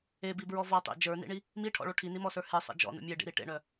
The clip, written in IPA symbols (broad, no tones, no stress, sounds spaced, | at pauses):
e b i b ɹ ɔ v ɔ tˤ ḛ d͡ʒ ə˞ n ḭ ɳ i | m i ʈʰ ɔ̰ ɭ o ʈʰ i n i m ɔ s ə˞ h e sˤ ḛ d͡ʒ ɔ̰ n ṵ mʲ e ɖ ḭ ɾ i ʈ ḛ ɳ œ